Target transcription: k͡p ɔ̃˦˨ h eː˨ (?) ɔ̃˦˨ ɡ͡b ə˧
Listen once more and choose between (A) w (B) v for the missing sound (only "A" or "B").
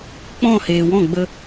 A